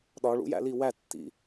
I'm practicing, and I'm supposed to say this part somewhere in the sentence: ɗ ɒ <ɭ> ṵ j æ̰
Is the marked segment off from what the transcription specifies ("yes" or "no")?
no